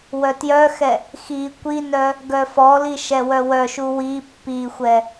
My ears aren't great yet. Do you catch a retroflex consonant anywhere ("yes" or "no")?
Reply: no